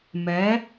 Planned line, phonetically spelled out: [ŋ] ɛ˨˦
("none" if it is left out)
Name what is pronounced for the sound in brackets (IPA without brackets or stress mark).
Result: m